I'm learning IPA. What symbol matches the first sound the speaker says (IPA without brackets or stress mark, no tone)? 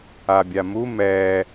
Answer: a